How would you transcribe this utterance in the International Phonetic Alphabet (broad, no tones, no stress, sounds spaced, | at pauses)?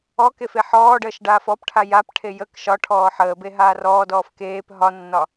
ɔ k e f e ħ ɔː ɖ əː ʃ ɖ aː f ɔ p ʈʰ a j a p ʈʰ e j ə k ʃ ɒ ʈʰ ɔː ħ əː b e ɦ aː r ɔː d ɔː f k eː p ɦ ɒ nː ɒ